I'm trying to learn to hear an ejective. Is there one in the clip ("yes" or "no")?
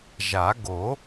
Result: no